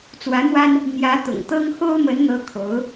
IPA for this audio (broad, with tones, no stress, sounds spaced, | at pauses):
t͡s w ä˧˥ n̪ w a˥ n | n̪ j ä˧˥ t̪ ʊ̰˨˩ ŋ t̪ ɤ˥ ŋ x o˥ ʊ̯ m ə˧˥ n n̪ ɤ˧˥ kʰ o˧˥ ʊ̯